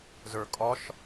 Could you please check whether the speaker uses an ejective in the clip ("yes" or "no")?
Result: yes